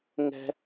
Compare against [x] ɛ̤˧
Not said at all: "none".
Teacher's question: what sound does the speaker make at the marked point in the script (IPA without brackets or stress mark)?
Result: ŋ